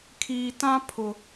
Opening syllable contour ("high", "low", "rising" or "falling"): high